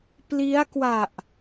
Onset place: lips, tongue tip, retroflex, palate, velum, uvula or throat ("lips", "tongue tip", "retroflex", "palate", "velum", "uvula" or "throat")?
lips